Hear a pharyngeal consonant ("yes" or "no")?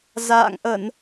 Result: no